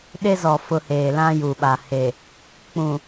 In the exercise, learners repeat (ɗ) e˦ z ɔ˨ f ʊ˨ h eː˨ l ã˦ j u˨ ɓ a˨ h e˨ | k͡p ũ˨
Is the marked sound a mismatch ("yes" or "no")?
no